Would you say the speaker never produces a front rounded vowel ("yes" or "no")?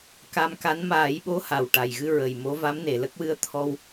yes